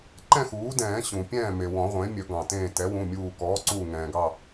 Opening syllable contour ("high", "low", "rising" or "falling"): falling